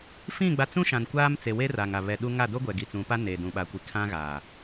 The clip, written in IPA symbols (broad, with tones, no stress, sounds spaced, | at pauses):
f ĩ˦˨ ɡ͡b a˦ t͡s ũ˦ ʃ ã˨ n kʷ aː˦ m t͡s e˨ w e˦ r a˨ ŋ a˨ β ɛ˨ ɗ u˦ ŋ a˦˨ d o˦ ɡʷ ɛ˨ ɡ i˨ t͡s ũ˨˦ p a˦ n eː˨ d ũ˨ ɓ a˨ kʷ i˨ kʰ ã˦ ɣ aː˨